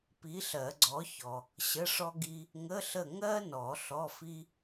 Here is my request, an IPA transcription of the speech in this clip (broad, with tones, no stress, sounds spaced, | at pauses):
p i˨˥ ɬ ɜ˨˩˦ ɡ͡ǀ ɔ˨˥ ç ɔ˨ | ɕ ə˧˥˧ ʂ ɔ˥ ɡ i˥ | ŋ ə˧˥˧ ɬ ə˦˨ ŋ ɜ˥ n ɔ˨˩˦ ɬ ɔ˧˥˧ f i˥